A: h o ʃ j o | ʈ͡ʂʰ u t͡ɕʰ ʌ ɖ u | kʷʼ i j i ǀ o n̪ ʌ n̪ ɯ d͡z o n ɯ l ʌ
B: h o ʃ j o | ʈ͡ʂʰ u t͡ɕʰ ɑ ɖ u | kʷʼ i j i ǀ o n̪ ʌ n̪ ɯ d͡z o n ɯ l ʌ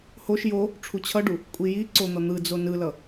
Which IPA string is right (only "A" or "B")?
A